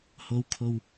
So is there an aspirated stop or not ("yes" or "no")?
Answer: yes